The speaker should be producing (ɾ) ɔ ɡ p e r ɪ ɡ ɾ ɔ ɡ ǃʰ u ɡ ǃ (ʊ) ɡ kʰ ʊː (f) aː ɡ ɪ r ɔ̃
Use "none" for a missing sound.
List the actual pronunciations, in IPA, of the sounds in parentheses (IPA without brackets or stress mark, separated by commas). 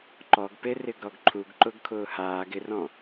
ǃ, ʊ, h